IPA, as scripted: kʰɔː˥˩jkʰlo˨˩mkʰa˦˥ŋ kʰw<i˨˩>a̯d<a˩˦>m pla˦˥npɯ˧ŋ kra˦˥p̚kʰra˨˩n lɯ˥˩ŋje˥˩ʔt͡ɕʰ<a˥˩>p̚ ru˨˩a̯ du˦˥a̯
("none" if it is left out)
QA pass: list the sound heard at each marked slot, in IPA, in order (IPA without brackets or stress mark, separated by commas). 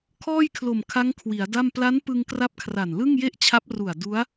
i˩˦, a˥˩, a˦˥